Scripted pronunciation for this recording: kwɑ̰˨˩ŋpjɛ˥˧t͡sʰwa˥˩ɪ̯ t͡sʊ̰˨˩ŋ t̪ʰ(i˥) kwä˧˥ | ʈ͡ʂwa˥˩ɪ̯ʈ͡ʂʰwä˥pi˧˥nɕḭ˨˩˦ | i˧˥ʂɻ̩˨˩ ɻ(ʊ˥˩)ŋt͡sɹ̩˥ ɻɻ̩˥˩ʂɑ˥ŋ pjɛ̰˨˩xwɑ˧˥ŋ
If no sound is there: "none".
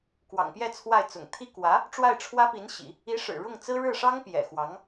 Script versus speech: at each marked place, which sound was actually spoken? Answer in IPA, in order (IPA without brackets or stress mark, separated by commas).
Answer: i˥, ʊ˥˩